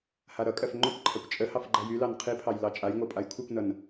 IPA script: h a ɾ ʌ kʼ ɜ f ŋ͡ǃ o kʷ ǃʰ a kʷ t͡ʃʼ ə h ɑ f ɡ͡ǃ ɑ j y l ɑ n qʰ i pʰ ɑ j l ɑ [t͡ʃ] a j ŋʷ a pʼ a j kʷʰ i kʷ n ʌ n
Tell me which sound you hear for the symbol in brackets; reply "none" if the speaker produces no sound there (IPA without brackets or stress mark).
t͡ʃʼ